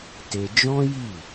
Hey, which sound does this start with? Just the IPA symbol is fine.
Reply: t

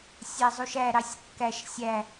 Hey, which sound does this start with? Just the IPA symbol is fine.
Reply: sʲ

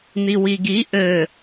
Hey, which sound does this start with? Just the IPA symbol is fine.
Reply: n̪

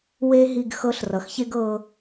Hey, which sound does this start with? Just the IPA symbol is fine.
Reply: w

